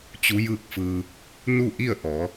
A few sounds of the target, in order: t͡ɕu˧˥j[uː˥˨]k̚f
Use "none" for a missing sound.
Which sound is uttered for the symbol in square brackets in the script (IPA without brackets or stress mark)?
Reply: ɯː˥˨